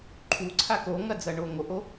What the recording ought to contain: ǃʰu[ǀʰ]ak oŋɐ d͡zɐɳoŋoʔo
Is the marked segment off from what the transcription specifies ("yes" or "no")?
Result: no